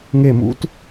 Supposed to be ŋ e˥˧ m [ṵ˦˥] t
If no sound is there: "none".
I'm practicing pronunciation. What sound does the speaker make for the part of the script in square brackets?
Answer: ṵ˦˥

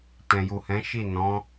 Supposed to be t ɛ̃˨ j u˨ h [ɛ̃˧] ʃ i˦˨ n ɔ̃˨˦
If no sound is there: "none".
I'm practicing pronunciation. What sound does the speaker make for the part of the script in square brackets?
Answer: ɛ̃˨˦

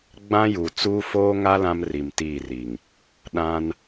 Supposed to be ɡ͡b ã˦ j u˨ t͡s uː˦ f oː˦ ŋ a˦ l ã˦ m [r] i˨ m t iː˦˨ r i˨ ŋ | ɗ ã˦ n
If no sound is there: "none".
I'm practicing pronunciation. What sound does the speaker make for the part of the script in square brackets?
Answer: r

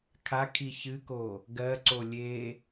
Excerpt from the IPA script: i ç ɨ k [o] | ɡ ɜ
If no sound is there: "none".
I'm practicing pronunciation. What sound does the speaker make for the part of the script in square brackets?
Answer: o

